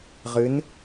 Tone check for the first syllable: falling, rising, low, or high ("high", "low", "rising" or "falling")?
rising